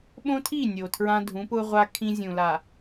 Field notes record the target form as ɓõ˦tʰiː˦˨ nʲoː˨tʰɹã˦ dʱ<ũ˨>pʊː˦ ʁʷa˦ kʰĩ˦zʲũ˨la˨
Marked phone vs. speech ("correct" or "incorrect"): incorrect